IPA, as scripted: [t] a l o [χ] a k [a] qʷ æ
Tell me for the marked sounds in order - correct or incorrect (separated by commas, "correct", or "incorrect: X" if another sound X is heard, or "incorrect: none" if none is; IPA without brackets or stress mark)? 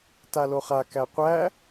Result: correct, correct, incorrect: æ